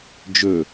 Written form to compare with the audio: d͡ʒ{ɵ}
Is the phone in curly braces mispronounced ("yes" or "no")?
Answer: no